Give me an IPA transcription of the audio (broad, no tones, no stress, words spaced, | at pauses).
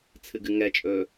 t͡sʰɨɡɨŋɛt͡ʃʼɵː